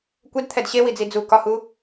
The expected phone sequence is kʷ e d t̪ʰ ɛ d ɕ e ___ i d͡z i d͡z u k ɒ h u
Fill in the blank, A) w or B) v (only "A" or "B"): A